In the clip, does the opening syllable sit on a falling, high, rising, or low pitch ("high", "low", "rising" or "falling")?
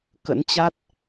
rising